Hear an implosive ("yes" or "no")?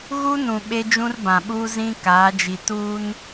yes